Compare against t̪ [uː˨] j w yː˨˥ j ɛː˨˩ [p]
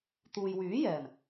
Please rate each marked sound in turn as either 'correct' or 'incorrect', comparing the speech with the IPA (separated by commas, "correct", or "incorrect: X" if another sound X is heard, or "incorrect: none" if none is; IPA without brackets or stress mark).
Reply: correct, incorrect: m